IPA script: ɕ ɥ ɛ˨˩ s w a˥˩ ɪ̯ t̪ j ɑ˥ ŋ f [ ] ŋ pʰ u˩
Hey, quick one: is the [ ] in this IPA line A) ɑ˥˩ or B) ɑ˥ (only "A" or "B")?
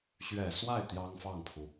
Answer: A